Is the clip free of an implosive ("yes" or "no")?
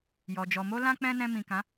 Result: yes